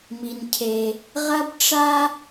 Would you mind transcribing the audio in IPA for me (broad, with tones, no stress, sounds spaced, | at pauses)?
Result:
m i˩ n cʰ e˩ | ʁ ɐ˥ b ʈ͡ʂ a˥